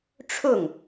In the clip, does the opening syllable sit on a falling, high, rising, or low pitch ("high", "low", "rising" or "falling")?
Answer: falling